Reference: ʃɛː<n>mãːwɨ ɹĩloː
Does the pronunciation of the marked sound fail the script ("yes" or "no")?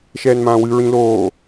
no